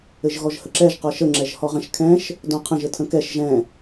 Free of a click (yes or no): no